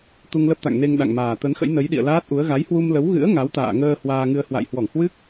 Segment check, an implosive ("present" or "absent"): present